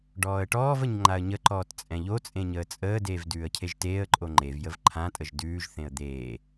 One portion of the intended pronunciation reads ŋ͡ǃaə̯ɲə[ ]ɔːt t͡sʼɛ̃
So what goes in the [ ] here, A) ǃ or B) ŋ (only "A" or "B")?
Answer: A